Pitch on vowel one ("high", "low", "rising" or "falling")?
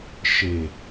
low